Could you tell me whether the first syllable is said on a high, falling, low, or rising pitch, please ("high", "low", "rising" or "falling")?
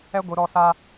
high